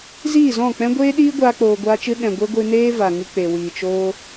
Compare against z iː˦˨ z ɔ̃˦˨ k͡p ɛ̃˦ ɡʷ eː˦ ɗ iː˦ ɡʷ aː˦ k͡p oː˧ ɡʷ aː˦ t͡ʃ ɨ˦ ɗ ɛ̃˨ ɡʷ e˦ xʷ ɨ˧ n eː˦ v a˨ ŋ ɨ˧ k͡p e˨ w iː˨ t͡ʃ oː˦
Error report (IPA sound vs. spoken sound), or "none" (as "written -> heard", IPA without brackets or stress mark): xʷ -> ɡʷ